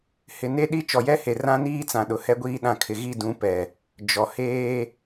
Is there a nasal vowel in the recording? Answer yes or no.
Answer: yes